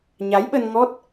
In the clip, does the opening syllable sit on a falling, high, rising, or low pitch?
rising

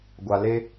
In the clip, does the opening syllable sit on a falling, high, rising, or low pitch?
low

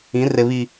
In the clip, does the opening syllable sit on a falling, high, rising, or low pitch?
rising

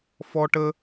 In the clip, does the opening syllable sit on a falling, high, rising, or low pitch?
high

